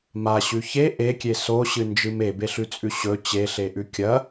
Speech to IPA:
m a ɕ ʉ ç e ʔ e kʲ e s o ɕ ɨ n d͡ʒ ɨ m e b e ɬ ʉ t͡sʼ ʉ ɕ ɵ t͡ɕ e ɬ e ʔ ʉ kʲ ɐ

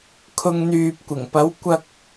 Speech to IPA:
kʰ ʊ˨ ŋ n̪ yː˨ p̚ kʷ ɪ˨˩ ŋ p ɐ˨˥ w kʷ ɐ˨ k̚

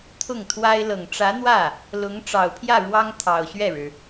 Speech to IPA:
t̪ʰ ʊ˥˩ ŋ t̪ʰ w a˥ ɪ̯ l ɤ˨˩ ŋ ʈ͡ʂ ä˧˥ n̪ w ä˥˩ | l ʊ˧˥ ŋ ʈ͡ʂ ɑ˨˩ ʊ̯ pʰ j ä˥˩ ɻ w ɑ˥ ŋ t̪ʰ ɑ˨˩ ʊ̯ ɕ ɥ ɛ˥˩ ɻ ɻ̩˩

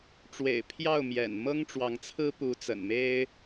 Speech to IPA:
ʈ͡ʂ w ḛ˨˩ ɪ̯ pʰ j ɑ˥˩ ʊ̯ m j ɛ̰˨˩ n m ɤ˥ ŋ ʈ͡ʂ w ɑ˧˥ ŋ t͡sʰ ɹ̩˥ p u˧˥ t͡s ə̰˨˩ n m e˥ ɪ̯

